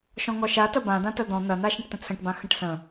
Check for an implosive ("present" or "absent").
absent